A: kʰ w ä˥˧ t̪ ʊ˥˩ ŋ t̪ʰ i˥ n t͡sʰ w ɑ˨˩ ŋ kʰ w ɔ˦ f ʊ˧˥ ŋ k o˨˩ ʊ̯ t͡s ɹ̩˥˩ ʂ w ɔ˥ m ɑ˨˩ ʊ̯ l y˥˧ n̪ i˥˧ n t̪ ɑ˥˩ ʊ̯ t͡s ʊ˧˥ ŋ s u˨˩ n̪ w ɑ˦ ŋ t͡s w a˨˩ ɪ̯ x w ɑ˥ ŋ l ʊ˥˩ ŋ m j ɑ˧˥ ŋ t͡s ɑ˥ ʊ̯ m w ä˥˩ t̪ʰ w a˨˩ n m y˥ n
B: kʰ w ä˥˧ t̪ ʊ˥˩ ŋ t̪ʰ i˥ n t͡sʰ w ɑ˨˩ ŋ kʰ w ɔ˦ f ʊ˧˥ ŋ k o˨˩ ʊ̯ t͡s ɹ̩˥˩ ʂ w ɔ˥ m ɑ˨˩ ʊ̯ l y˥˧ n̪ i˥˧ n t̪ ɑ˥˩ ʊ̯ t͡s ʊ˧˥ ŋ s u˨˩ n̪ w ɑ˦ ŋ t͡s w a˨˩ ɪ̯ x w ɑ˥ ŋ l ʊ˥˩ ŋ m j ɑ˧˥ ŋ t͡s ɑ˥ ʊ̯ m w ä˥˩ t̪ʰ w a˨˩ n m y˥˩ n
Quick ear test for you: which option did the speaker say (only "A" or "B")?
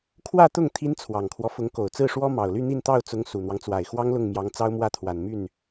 B